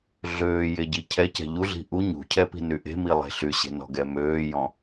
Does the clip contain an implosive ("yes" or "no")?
no